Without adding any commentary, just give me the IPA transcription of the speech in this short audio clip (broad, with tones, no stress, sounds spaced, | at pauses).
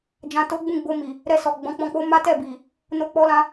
d͡ʒ ã˨ t o˨˦ ɡ͡b ũ˦˨ ɡ͡b o˧ m i˨ | ɾ ɛ˧ s ɔ˨ ɡ͡b ɔ̃˨˦ k͡p ɔ̃˧ k͡p o˦ m a˦ t ɛ˦˨ b i˨ | n o˧ k͡p ɔ˧ l ã˧